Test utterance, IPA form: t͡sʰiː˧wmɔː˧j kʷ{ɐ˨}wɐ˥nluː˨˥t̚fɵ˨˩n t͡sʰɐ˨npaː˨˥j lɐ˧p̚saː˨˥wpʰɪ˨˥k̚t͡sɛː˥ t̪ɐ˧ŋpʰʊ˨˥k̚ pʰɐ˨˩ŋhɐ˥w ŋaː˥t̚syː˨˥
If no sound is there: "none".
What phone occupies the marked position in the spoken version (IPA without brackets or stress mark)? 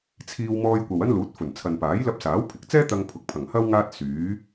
ɐ˨